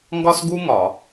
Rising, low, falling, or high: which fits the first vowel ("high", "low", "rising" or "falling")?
high